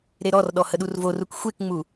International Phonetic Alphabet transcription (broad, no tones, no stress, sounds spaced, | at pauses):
ɾ e ɾ ɔ r ɗ ɔ h ə ɗ u r v o r u k xʷ e k ŋ͡m u